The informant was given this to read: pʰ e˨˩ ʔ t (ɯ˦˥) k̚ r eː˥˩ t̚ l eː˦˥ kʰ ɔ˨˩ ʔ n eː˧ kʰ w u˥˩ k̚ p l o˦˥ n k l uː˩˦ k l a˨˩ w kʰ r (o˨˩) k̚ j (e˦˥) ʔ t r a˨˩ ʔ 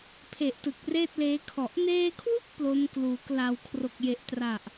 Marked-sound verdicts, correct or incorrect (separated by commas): incorrect, correct, incorrect